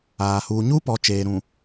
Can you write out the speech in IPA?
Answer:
aː˨ h uː˨ ɲ u˦ p ɔ˨ t͡ʃ eː˨ ɾ ũ˨

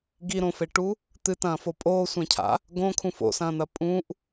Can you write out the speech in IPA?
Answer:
ɡ i ɾ õ f e ʈ u | t̪ ɨ t ɐ̃ː f o pʼ oː sʷ ẽ cʰ a̰ | ɡ õ kʰ ũ f o̰ s ɐ̃ː n̪ ɐ pʼ ũ ʔ

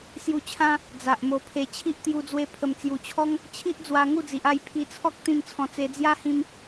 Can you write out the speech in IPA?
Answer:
s j u˧ t͡ɕʰ ã˦ | d͡z a˨ ʔ m o˧ pʰ e˧ t͡ɕʰ i˦ ʔ t̪ j u˧ d͡z w e˧ pʰ ə˨˩ m t͡s j u˨˩ t͡ɕʰ ɔ˦ ŋ | t͡ɕʰ i˦ ʔ d͡z w a˧ ŋ u˥˧ d͡z i˨ ʔ a˥˧ j pʰ i˧ t͡sʰ ɔ˦ k̚ t̪ ĩ˥˧ m t͡sʰ ɔ̃˧ t͡s e˧ d͡z j a˦ h ĩ˧ m

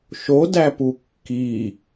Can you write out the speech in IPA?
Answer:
ʃ o d æ p u kː i

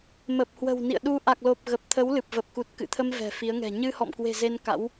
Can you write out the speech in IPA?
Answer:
m ə˨˩ p̚ h w ə̤˨˩ w n ḭ˧˨ ə̯ ɗ u˧ ʔ a˨˩ k̚ l o˨˩ p̚ ɣ ə˨˩ p̚ t̪ʰ ə˨˦ w l ɨ˨˩ p̚ v ə˨˩ p̚ k u˨˩ t̚ k ɨ̰˧˨ t̪ʰ ə˧ m v ɛ̤˨˩ f i˨˦ ə̯ ŋ ɛ̤˨˩ ɲ ɨ˧ h ɔ̰˧˨ m k w e̤˨˩ z e˧ n k a̰˧˥ w

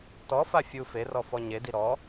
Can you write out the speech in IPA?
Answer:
t ɔ f a fʲ u f e r ɔ f ɔ ɲ e d i ɾ ɔ

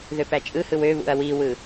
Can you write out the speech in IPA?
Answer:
ð ø p æ t͡ʃʼ ɯ h ɯ w ø β ṵ ɐ̯ w i w ɯ

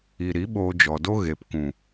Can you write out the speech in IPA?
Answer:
i˨ ɾ i˨˦ ɓ oː˧ d͡ʒ ɔ˨ d o˦ ɣ e˨ p k ũ˨

